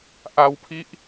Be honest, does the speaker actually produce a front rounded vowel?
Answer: no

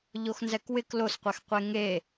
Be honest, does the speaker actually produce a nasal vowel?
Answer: no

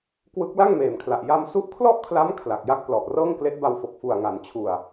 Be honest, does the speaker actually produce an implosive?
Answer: no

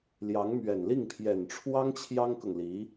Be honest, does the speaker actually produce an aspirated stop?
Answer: yes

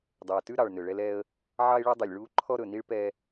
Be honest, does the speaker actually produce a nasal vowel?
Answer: no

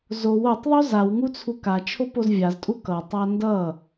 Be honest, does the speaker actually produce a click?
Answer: no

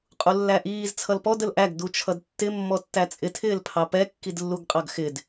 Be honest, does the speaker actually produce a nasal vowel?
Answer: no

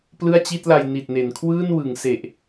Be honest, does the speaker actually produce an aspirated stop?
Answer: yes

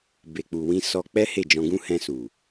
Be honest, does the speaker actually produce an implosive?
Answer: no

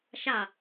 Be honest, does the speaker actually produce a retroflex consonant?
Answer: no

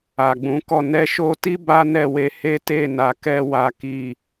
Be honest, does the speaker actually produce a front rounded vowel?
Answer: no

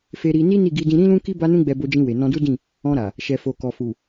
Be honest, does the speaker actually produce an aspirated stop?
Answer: no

